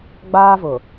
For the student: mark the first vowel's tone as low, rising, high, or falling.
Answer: high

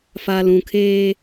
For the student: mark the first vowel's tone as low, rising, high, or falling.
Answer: low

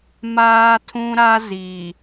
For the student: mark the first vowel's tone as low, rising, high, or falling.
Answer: high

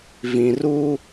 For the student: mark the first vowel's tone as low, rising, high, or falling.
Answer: low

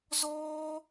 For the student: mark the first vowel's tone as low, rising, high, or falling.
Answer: high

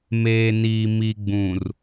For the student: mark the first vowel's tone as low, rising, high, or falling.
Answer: low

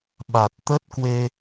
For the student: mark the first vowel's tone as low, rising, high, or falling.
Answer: low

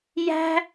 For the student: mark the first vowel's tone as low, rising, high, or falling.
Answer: high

